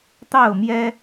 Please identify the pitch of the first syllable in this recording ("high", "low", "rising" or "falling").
falling